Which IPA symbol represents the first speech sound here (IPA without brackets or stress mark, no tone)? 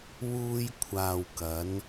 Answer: w